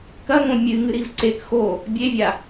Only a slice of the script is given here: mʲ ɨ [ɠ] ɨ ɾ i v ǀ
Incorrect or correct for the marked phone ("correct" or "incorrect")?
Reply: incorrect